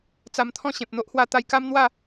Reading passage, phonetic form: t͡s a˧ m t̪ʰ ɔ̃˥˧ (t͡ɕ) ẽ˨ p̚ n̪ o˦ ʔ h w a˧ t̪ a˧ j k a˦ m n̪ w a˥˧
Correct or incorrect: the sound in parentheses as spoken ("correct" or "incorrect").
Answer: incorrect